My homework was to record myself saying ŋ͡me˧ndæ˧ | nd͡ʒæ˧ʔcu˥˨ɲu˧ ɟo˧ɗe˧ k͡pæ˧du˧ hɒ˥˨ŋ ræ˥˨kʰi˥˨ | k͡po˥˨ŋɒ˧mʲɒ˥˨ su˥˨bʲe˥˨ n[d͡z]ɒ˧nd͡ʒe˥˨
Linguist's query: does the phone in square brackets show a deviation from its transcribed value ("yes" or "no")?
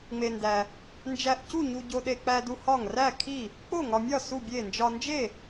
yes